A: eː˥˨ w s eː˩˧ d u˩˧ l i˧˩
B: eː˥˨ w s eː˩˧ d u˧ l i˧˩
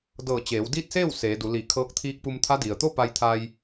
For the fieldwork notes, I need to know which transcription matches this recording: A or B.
A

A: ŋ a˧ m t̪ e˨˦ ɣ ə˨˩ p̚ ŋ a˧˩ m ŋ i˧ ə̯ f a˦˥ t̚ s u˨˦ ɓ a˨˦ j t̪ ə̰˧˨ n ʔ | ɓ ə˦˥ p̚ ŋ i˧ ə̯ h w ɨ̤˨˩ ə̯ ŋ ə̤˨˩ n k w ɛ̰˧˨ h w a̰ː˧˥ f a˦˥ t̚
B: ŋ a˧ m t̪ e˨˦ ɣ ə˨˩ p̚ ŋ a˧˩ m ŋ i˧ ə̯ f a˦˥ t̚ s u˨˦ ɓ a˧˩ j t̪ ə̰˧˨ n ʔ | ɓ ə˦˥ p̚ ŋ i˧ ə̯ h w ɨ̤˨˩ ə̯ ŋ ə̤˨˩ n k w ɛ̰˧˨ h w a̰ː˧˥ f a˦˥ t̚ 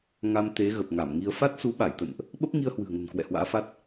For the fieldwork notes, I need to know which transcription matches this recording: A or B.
B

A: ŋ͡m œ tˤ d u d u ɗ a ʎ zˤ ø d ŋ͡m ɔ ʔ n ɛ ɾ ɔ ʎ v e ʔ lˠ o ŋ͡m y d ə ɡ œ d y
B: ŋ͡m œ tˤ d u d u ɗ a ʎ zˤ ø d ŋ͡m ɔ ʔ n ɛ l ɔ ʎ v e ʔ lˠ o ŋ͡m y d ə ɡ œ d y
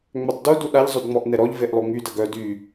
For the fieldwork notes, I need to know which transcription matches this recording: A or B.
A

